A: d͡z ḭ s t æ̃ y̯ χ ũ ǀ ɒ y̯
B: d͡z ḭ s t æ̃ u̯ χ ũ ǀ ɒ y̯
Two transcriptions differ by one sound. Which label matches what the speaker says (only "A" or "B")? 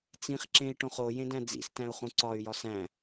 B